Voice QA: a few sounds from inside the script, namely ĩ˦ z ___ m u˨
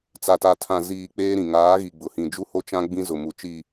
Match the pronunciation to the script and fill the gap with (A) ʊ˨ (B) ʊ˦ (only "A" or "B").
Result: A